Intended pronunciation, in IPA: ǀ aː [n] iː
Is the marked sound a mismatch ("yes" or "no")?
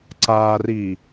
yes